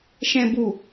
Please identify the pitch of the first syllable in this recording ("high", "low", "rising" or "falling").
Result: low